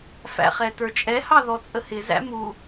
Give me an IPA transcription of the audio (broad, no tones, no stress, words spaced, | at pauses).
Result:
fæ̰χɛtə˞t͡ʃʼɛ hɑðɔt͡sʼəhɪ zæ̰mu